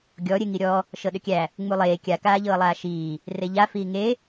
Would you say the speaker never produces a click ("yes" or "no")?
yes